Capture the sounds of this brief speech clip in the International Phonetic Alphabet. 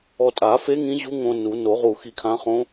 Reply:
ɔ˧ tʼ a˨˩˦ f e˧˥ ŋ ĩ˧˥ ʑ u˧˥ ŋ õ˧ n u˨˩˦ n o˨˩˦ ʁ u˧˩ x i˧ kʰ ã˧˥ χ õ˧˥

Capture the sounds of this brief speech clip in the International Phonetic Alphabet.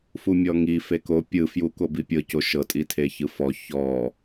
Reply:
f u mʲ ɔ ŋ i f e k o pʲ ɯ f j u k o b i pʲ ɤ c o ʃ ɤ tʼ i tʰ e ç ɯ f ɔ ç ɔ

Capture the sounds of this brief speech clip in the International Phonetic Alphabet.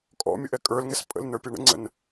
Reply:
kʼ ɔ̰ mʲ ʊ ʔ ɛ kʼ ə˞ l ŋ ɛ s pʼ ə̰ l n ə˞ pʲ ʌ ɳ ə̰ ŋ͡ǀ ə̰ n

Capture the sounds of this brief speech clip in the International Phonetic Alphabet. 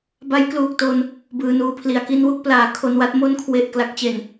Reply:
b a˦˥ j k l uː˨˩ k̚ t o˧ n | b ɯː˧ n uː˧ pʰ l i˧ a̯ k i˧ n w u˥˩ k̚ p l aː˨˩ kʰ o˧ n w a˥˩ t̚ m o˦˥ n kʰ w e˨˩ ʔ k l a˦˥ k̚ t͡ɕ e˨˩ n

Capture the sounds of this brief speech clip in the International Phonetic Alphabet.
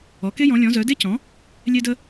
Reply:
ɔ˩˥ k e˥ j ɔ̃˩˥ lʲ ɔ̃˩˥ z œ˩˥ d e˥ c ɔ̃˩˥ | lʲ e˥ d ə˥

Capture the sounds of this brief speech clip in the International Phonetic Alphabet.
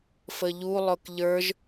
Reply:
f ə ʎ u lˠ ʊ k ʎ ə˞ ʒ

